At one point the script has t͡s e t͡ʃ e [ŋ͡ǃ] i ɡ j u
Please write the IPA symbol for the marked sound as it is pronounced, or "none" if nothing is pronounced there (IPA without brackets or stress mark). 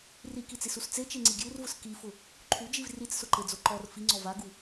ŋ͡ǀ